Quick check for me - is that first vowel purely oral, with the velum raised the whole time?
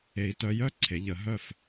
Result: yes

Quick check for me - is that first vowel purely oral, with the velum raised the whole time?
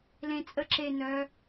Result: no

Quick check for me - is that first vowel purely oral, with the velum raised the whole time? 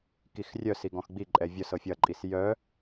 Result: yes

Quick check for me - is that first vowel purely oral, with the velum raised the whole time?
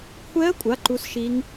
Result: yes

